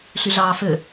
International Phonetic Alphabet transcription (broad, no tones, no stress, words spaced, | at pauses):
ɬyɮɑːfø